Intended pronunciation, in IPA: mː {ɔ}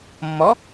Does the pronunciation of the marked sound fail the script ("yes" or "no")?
no